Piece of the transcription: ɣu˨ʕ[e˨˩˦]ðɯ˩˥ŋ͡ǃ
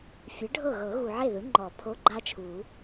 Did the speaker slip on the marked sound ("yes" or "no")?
yes